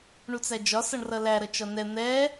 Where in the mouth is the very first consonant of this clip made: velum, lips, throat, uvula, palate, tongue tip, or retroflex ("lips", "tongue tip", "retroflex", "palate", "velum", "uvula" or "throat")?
retroflex